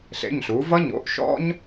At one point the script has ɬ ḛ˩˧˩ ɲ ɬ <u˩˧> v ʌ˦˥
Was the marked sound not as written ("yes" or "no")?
no